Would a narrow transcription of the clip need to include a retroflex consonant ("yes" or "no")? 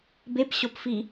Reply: no